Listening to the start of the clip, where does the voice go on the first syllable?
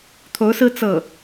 rising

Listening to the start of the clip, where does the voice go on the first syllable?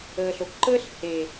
low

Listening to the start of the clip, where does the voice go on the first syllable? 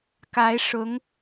rising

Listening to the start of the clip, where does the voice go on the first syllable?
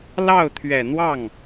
falling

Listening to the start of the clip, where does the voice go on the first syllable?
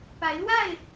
rising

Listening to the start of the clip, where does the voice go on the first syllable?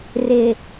low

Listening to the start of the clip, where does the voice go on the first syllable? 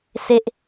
high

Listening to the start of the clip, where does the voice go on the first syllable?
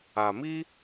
low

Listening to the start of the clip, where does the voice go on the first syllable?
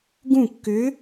falling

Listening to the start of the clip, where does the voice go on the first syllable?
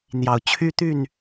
low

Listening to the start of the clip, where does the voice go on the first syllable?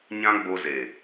high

